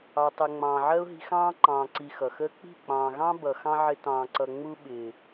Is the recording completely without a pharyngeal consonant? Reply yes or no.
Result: no